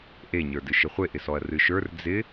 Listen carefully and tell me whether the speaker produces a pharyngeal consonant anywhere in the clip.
no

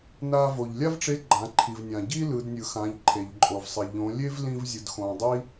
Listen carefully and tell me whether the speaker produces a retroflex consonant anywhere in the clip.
yes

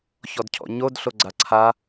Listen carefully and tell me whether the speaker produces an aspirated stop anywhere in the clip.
yes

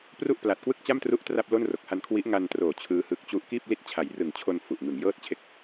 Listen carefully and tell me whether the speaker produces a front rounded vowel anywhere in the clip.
no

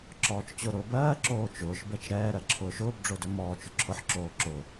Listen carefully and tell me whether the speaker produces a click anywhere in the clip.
yes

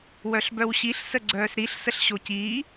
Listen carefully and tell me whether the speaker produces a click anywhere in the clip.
yes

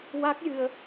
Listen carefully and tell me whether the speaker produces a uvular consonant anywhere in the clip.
no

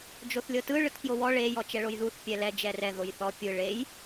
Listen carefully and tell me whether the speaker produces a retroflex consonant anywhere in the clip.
yes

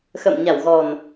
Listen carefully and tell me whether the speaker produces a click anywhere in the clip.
no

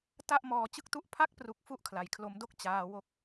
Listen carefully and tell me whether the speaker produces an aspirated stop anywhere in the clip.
yes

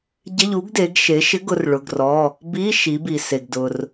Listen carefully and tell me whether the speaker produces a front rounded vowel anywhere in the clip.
no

